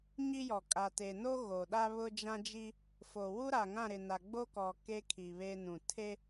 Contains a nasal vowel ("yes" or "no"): yes